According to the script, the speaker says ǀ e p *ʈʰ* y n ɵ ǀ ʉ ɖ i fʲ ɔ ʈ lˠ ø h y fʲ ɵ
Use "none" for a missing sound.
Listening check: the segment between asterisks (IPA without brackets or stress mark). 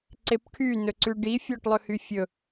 ʈʰ